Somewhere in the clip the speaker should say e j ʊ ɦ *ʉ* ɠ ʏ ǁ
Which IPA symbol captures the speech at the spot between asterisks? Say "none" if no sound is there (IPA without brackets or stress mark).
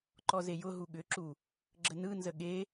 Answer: u